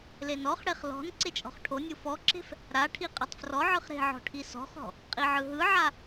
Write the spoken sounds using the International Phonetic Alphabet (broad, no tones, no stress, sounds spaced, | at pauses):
l e n ɔ χ ɽ e χ l ɔ̤ n ǀ e t͡ʃʼ ɔ̤ χ ʈʰ o nʲ u f ɔ ǁ e̤ f | ɾ a ʈʰ i qʼ e tˤ f r ɔ ʕ ɯ χ ɾ e̤ ʕ ɔ̤ ʈʰ i s ɔ̤ χ ɔ̤ | qʼ i ʕ ɯ ɦ ɯ ʕ a